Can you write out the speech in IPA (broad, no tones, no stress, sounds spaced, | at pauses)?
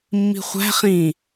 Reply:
mː i̤ χʷ æ̤ χ ĩ